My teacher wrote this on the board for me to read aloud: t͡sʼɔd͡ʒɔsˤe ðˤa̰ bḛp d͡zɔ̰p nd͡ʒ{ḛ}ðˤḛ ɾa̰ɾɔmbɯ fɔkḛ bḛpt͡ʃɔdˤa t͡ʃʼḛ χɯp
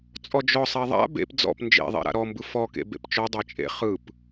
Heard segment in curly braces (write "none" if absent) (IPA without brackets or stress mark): ḛ